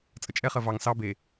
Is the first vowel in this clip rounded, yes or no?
no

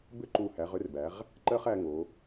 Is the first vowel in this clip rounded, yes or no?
yes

